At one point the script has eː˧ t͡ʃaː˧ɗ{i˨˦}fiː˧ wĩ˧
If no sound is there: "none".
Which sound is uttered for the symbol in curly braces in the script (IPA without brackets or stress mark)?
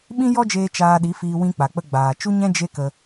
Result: i˨˦